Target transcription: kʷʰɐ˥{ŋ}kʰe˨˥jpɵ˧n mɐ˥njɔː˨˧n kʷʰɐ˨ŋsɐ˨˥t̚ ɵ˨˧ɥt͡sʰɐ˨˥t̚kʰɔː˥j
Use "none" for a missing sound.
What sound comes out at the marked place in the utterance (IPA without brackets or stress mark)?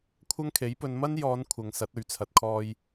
ŋ